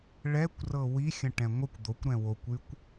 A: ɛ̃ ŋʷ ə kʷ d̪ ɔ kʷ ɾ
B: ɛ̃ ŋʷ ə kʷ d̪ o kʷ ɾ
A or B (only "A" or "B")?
B